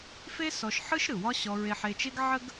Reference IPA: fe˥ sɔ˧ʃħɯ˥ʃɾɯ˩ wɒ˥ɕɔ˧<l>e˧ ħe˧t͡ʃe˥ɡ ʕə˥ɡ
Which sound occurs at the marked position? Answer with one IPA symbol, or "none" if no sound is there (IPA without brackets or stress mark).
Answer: ɹ